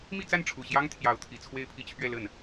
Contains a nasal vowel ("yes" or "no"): no